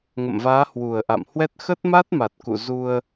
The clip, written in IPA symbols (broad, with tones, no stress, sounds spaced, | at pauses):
ŋ ə̰˧˨ m v aː˨˦ h w u˨˩ ə̯ ʔ a̰˧˨ m h w ɛ˦˥ t̚ x ə˦˥ t̚ m a˦˥ t̚ m a˨˩ t̚ k ṵ˧˨ z u˧ ə̯